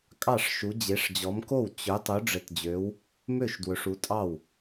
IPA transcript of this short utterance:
kʼɑ˥˩ʂʃu˨˦ d͡ʑe˨˦ʂd͡ʑɔ˨˦mko˥˩w t͡ɕɵ˨˦ tˤu˨˦ɖ͡ʐɘ˨˦td͡ʑø˨˦w | mø˥˩ʃ dwɵ˨˦ʂu˨˦tʼɑ˥˩w

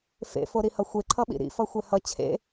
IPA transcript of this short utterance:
fḛfoɾihʌ xʷeǃʰʌɓḭ ɾḭfʌxʷɛ hʌ t͡ɕʰḛ

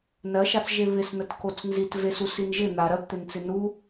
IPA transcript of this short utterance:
nɜʃat͡sʒe βɪsnətkot͡s nzit vesusin ʒɪ n̪a ɾɜpt̪ent͡sɪ nu

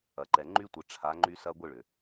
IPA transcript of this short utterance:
ɐ˨ǃɛ˨ ŋ͡ǃy˦tʷɪ˨ ʈ͡ʂʰa˨˦ ŋ͡ǃy˦sɐ˦ ɡʷɪ˦˨ ɭʏ˨

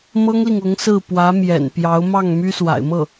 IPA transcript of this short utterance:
mɤ˥ŋli˨ŋ ʊ˧˥ŋsɹ̩˥˩pwä˧˥ mjɛ̰˨˩npjɑ˧˥ʊ̯mɑ˥˩ŋ my˥swa̰˨˩ɪ̯mɤ˥˩

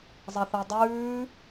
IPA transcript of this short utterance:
zˤɐθɐdˤʉː

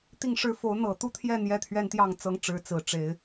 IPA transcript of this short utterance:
t̪i˥˧ŋʂɻ̩˥˩ fo˧˥ʊ̯ n̪ɤ˨˩t̪u˥˧t̪ʰjɛ˥˩ n̪jɛ˥t̪ʰɥɛ˥nt̪jɑ˥˩ŋ t͡sɤ˥ŋʈ͡ʂɻ̩˧˥ t͡sɹ̩˨˩ʈ͡ʂe˧˥ɪ̯

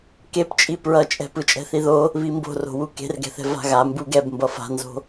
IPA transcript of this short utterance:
kept͡ʃʼi pɹʌt͡ʃʼɛ̤ pɯt͡ʃʼɛ̤θiðo | βimbo̤ro̤wu ke̤rɡɛ̤θɛ̤ va̤ɣa mbuɡɛb mbʌfa̤nzo̤

